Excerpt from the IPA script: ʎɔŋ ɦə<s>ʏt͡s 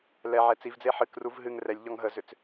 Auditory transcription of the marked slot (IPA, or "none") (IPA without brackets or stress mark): z